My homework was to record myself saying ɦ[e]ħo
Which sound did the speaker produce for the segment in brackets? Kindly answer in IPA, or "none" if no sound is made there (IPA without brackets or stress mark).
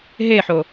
e